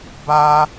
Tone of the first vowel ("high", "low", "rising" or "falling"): high